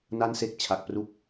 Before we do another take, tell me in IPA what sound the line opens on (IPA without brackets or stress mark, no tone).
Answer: n